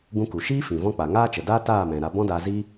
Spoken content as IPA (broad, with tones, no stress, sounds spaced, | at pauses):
ɡ ũ˧ k u˨ ʃ iː˦ f ĩ˨ v ɔ̃˧ k͡p a˨ ŋ aː˦ t͡ʃ ə˨ d aː˦ t aː˦˨ m ɛ̃˨ ɾ a˧ b ɔ̃˦ d aː˧ z i˦